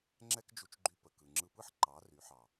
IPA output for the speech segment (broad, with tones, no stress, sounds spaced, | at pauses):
ŋ͡ǁ ɛ˦ k d͡ʒ u˧ t͡ʃ ɡ͡ǃ y˧ p ə˨ k ɯ˨ ŋ͡ǁ ɯ˧ p ɯ˦ ħ ǃ ɑ˨˦ r y˨˦ ħ ɑ˨